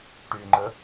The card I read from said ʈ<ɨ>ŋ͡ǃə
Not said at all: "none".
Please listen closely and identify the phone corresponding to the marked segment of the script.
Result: y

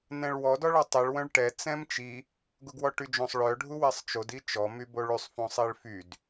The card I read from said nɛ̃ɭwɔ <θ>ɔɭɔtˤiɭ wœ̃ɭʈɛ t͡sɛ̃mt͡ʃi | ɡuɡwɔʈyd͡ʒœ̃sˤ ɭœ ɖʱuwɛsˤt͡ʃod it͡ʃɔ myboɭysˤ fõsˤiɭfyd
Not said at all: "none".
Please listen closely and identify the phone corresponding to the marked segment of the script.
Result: d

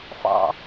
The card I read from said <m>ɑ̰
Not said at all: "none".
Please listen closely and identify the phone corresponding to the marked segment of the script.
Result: f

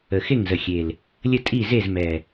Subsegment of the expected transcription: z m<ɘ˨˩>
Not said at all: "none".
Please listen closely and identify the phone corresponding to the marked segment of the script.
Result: ɛ˨˩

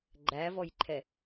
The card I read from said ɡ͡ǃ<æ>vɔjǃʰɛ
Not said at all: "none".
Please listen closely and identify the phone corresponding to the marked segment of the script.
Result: æ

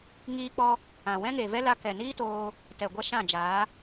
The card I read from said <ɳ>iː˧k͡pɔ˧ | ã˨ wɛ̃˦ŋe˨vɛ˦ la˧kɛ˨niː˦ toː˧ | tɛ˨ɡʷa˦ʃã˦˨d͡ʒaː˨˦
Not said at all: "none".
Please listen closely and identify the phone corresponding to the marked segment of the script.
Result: ŋ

